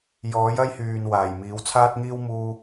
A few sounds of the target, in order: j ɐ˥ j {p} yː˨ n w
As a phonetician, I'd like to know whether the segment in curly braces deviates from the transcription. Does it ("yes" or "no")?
yes